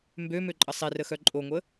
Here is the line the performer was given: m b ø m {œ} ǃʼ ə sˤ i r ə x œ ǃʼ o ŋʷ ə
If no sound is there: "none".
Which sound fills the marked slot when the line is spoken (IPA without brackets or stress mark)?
ø